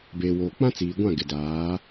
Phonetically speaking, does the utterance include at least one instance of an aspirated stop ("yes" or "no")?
no